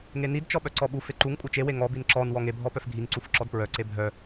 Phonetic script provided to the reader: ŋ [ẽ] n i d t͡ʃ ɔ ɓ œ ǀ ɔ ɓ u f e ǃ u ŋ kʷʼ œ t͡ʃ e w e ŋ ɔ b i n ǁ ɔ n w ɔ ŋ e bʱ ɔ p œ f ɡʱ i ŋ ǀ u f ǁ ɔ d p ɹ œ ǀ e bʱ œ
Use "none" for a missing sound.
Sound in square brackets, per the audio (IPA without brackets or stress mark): e